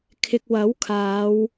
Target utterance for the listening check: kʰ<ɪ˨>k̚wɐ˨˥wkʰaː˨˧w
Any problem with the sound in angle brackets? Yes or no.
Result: no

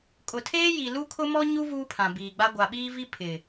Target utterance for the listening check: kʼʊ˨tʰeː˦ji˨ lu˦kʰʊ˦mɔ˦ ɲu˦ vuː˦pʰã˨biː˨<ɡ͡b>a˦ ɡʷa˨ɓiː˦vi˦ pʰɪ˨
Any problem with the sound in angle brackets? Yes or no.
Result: no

